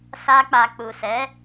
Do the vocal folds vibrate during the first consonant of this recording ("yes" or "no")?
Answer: no